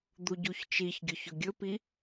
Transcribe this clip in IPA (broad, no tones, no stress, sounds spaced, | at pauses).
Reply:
d̪ u ɟ u ç t͡ʃ i ç ɡʲ ɵ ç ɵ ɡʲ ɵ p i